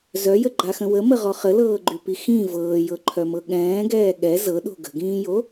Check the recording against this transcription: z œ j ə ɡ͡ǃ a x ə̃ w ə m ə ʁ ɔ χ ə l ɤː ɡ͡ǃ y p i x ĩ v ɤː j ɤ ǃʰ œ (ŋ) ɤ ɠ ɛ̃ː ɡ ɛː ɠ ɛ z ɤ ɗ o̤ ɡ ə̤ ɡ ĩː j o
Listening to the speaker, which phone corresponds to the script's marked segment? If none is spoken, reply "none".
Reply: m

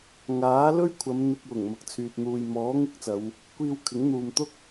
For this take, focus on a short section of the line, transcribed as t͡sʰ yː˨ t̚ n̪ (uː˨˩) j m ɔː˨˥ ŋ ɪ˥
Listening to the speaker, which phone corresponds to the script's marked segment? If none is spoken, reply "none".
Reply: uː˨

